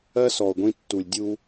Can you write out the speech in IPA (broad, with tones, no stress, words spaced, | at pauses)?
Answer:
ɜ˦ sɔ˨o̯ɡʷĩ˧tːu˨lʲ dʲu˧